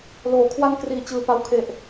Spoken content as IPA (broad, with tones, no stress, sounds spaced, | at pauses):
l oː˩˦ kʰ w a˧ n k r iː˨˩ t͡ɕ ɯː˨˩ p a˧ w kʰ e˨˩ ʔ